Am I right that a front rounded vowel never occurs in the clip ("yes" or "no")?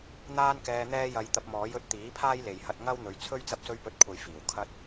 yes